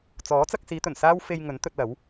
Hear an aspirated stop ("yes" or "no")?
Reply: no